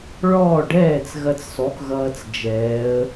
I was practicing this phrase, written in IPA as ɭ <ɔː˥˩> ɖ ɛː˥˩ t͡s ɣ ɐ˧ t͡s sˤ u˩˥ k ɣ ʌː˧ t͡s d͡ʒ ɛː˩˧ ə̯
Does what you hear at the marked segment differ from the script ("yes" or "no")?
no